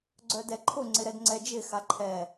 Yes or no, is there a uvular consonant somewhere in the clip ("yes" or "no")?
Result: no